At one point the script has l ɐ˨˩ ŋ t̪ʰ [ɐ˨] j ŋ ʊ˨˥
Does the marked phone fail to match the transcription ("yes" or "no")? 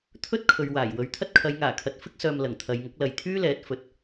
no